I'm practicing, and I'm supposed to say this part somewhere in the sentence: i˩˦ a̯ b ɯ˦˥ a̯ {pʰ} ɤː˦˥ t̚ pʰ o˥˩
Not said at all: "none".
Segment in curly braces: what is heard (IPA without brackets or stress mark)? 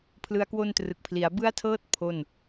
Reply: tʰ